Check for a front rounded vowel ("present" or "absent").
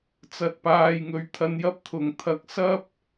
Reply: absent